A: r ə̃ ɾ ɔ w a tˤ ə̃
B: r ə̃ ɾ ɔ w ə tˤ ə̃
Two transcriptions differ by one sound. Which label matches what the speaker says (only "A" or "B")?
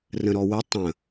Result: B